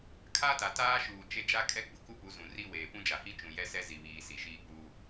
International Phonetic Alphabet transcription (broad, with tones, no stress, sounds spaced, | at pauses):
kʰ a˦ t a˨ t aː˦ ʃ uː˨ t͡ʃ e˦ d͡ʒ a˦ kʼ ɛ˦ ɡ͡b ʊ˨ k u˦ p u˨˦ z ũ˨ r i˦ w eː˨ p ũ˦ d͡ʒ a˨ h i˦ t͡ʃ ũ˨ j ɛ˦ s ɛ˦ z i˨ β iː˨ s i˨ ʃ iː˦ k͡p uː˦